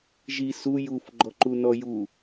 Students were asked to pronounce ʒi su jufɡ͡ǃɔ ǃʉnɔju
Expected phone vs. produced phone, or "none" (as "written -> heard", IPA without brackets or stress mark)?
ʉ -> u